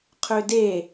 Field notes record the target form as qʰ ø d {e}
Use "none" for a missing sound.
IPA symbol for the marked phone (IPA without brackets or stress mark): e